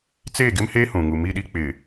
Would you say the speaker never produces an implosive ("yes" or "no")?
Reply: no